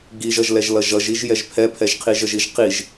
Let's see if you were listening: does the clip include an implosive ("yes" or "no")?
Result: no